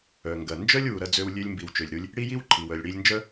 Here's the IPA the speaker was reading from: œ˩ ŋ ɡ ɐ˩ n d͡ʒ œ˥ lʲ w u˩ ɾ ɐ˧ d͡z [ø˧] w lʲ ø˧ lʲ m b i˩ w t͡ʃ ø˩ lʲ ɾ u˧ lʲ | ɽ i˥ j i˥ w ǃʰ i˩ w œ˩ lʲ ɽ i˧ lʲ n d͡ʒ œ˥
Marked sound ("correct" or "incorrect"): correct